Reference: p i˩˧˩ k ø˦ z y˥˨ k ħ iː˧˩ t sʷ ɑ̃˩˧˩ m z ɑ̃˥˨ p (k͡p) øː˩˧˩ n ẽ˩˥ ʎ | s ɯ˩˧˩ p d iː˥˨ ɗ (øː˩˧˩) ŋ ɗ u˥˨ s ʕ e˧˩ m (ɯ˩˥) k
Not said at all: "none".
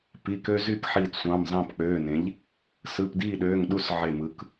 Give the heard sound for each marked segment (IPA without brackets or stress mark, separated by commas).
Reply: k͡p, øː˩˧˩, ɯ˩˥